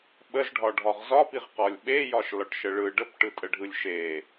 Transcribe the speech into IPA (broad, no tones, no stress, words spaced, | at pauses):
ɓəzɖʱɒɖʱɒʁ zɒpiʁqɒlʲ ɓejɒʃlɒʈʃə ɭɯ ɖəpʈɯtʼəɖʱɯlʲ ʃe